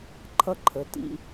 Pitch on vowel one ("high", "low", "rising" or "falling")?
high